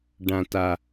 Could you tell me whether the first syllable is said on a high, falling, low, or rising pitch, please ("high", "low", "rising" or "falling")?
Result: low